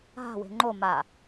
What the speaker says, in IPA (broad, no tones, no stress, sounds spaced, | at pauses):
ɦ a̤ w e̤ ŋ͡ǃ o m a